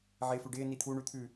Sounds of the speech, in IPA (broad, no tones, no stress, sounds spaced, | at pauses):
ʕ ɪː f ʉ ɖ ɪː n i t̪ʰ u ɳ ʉ t̪ʰ ʉ